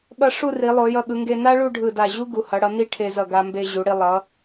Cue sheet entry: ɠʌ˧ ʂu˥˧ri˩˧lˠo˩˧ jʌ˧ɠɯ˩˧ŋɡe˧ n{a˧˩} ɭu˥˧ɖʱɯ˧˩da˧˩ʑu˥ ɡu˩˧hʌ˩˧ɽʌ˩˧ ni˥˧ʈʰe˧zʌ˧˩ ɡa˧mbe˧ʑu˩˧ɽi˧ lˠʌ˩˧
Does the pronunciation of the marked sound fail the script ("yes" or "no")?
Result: yes